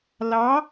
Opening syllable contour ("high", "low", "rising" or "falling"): rising